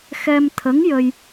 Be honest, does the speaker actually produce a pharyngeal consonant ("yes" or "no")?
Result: no